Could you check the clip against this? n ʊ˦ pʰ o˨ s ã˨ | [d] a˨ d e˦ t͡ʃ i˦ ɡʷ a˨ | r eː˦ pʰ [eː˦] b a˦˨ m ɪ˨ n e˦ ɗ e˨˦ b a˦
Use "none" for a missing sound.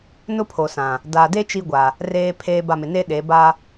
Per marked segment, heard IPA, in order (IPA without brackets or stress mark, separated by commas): d, eː˦